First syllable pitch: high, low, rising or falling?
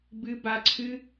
high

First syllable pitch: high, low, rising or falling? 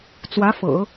rising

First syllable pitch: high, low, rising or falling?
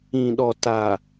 low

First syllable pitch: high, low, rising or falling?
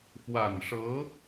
low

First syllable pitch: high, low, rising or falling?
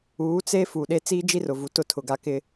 rising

